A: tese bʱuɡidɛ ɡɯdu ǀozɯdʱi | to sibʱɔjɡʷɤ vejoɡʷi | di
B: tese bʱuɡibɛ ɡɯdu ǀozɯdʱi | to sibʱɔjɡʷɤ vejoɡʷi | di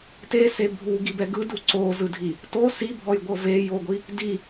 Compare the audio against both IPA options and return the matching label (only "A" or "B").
B